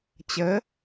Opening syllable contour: rising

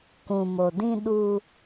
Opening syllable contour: low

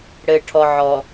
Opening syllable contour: low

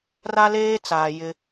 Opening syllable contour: high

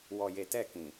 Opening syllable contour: low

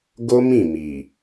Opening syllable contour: high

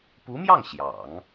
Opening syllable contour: rising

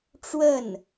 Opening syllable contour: falling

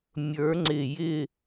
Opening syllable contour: rising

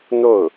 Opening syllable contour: falling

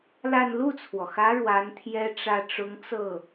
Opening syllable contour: falling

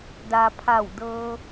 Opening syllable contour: low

